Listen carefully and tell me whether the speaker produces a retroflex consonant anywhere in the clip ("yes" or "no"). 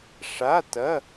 yes